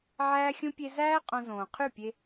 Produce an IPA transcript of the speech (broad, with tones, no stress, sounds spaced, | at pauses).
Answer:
ʕ æː˦ xʲ ũ˦ pʲ e˦ z æː˦ qʼ õ˧ z õː˨ qʰ y˦˨ pʲ e˧